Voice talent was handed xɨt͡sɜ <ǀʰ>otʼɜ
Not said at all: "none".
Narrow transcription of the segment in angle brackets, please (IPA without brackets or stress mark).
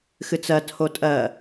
tʰ